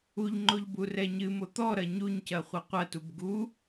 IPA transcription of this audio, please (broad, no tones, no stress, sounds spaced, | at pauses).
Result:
u ʎ ŋ͡ǃ o ʎ b u r ɛ ɲ ɨ m o t̪ ɔ ɾ ɐ ɲ u ɲ c ɐ χʷ ɐ qʷ ɐ t u b ɡ u